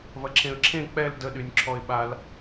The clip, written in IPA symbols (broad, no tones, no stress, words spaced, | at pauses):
vɐǁʰẽə̯ǁʰẽ k͡pɛl dəɗynʲǁʰɔɪ̯ɓal